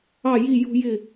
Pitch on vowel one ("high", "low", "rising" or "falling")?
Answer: falling